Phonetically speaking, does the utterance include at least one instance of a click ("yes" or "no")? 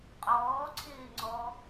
yes